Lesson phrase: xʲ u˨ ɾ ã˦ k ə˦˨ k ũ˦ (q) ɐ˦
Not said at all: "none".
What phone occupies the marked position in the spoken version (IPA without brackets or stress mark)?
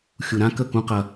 q